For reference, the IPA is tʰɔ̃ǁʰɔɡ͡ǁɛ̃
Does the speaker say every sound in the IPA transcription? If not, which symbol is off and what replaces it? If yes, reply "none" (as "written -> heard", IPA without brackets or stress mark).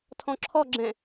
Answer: none